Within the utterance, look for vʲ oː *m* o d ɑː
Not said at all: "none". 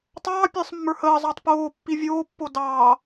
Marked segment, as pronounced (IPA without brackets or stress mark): pː